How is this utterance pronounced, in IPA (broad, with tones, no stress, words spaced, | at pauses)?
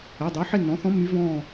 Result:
e˩˧˩dˤø˩˥ ħe˦˨nːɔ̃˩˥θɔ̃˧˥ mːy˧˥vɔ̃ː˦˨